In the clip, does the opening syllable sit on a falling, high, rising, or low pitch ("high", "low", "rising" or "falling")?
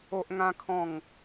high